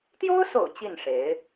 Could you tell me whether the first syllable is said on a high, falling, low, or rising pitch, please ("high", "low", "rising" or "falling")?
high